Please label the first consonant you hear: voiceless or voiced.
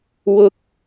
voiced